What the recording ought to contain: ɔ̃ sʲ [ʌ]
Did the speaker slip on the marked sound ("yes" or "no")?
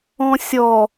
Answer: yes